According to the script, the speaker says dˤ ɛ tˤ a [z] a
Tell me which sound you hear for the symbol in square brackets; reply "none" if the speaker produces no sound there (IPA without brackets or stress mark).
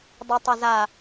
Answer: z